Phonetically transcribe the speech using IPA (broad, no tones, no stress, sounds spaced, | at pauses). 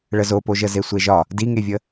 ɭ ə z o p o ʒ ə z e sʷ e ʒ ɒ | d i ŋ e vʲ ə